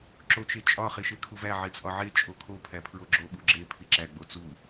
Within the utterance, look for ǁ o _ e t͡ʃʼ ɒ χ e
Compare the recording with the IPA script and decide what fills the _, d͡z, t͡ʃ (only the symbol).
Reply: t͡ʃ